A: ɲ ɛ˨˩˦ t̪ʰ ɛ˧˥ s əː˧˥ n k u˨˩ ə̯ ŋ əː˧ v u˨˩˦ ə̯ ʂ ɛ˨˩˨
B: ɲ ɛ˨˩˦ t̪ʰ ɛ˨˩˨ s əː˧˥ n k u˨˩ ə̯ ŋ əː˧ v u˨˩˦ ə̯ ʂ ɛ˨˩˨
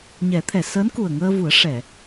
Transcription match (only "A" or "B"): B